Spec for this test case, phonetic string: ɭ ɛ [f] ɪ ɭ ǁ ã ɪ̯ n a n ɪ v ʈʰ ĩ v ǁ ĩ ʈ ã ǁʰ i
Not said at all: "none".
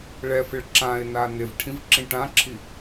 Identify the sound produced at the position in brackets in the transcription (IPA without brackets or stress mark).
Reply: f